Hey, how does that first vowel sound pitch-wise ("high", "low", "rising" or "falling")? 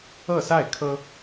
falling